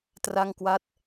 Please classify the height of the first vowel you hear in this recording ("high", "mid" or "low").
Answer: low